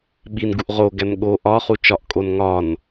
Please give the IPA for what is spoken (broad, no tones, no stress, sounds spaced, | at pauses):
ɓ i n ɡ u ʔ ʁ o ɡ æ n ɠ o ʔ ɒ χ u t͡ʃ ɒ ʔ kʼ o n ŋ ɒ n